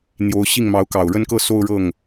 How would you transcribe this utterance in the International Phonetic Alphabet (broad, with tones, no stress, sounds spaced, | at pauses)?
n̪ j o˧˥ ʊ̯ ɕ i˥˩ ŋ m ɑ˧˥ ʊ̯ k ɑ˨˩ ʊ̯ ɻ ə˥˧ n k ɤ˥˧ s o˥˧ ʊ̯ ɻ ɤ˥˩ ŋ